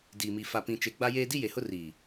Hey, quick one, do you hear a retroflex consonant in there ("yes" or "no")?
no